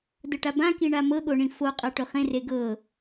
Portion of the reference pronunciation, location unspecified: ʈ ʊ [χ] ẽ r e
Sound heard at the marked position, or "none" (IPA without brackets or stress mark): χ